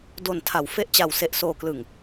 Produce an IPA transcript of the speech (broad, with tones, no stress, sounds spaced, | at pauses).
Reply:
d o˨˩ n tʰ a˩˦ w f e˦˥ ʔ t͡ɕ a˨˩ w s e˨˩ ʔ s oː˨˩ k l ɯ˨˩ ŋ